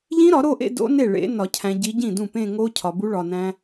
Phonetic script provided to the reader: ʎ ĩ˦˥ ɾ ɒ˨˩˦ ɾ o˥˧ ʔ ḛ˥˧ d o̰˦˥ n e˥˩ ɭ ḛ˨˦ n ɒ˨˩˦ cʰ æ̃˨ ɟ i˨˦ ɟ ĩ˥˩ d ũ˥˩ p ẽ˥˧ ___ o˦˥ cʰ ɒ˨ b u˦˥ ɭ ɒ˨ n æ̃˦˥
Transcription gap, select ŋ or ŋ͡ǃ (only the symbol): ŋ